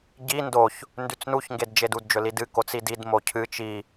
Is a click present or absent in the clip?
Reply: absent